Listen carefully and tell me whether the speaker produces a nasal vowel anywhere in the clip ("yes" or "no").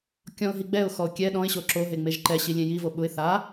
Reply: yes